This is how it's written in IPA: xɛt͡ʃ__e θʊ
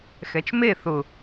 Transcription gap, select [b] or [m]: m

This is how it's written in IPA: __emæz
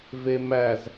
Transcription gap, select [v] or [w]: v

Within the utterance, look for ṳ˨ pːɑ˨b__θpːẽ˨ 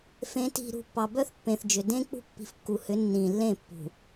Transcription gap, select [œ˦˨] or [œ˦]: œ˦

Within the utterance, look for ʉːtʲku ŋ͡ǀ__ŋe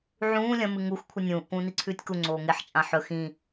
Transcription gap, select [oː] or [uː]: oː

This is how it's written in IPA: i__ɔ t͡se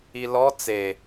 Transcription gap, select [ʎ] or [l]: l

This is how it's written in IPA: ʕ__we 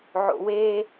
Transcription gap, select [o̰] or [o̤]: o̰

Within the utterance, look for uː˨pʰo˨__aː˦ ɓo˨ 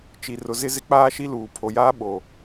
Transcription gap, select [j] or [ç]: j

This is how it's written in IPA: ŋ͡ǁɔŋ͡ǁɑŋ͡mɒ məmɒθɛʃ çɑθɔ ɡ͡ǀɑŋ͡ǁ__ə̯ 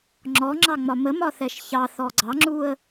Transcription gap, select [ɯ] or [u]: u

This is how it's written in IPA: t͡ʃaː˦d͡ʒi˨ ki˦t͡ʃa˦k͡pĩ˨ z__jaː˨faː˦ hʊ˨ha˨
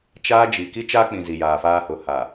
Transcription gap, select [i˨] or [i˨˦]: i˨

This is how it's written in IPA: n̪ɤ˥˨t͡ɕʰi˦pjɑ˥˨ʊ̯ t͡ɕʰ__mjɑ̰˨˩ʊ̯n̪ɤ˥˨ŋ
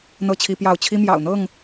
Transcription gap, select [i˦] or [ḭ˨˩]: i˦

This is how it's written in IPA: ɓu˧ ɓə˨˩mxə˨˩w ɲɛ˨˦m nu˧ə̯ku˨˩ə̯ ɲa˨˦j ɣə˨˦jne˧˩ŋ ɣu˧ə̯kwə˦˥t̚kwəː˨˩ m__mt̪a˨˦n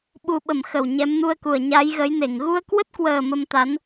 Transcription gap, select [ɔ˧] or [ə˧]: ə˧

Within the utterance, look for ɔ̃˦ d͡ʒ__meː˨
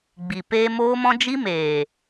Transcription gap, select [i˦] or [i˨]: i˦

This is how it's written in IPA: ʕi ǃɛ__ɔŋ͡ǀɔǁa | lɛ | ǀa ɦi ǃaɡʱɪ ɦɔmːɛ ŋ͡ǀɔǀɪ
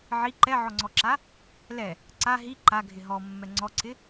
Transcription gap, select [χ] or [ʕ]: ʕ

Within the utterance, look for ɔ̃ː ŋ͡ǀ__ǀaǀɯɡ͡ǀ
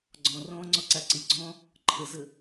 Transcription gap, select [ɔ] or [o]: ɔ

